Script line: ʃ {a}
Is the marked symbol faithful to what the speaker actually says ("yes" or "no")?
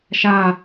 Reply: yes